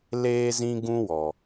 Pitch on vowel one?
high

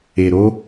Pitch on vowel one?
low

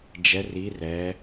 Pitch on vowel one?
rising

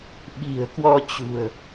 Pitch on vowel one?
low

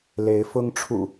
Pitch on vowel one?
rising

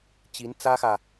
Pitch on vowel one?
rising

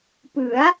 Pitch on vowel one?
rising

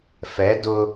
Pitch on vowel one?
rising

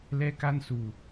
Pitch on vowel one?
high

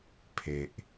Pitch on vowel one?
low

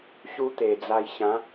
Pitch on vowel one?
high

